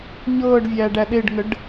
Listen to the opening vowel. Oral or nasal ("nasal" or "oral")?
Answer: oral